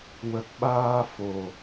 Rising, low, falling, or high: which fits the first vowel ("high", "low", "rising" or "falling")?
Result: low